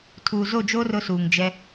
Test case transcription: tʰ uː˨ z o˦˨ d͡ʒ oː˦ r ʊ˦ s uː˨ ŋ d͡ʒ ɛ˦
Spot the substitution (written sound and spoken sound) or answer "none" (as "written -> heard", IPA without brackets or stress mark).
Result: none